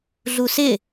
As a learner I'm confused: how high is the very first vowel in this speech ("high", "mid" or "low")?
high